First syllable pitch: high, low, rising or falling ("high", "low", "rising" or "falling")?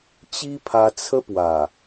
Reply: high